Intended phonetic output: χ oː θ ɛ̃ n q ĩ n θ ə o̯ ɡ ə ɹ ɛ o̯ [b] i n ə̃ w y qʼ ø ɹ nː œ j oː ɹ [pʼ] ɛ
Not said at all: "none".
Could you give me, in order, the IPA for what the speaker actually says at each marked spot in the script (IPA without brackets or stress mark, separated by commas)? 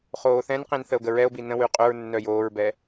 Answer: b, b